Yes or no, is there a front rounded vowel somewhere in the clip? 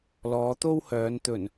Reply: yes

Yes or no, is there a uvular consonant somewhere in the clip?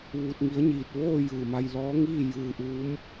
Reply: no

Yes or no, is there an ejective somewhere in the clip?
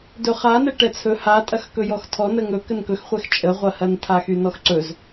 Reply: yes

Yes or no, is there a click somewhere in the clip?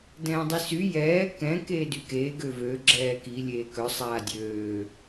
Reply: yes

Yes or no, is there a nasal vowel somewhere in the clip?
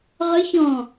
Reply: yes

